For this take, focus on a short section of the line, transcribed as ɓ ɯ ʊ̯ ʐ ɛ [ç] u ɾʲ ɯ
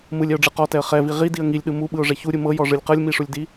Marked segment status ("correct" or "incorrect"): correct